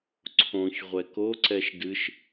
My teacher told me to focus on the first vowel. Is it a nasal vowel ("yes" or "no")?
yes